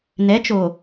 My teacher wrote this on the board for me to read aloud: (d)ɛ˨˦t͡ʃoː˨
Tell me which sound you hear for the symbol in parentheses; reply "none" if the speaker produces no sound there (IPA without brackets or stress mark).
n